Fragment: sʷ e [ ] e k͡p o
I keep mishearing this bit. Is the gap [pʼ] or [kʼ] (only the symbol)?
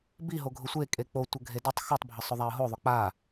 kʼ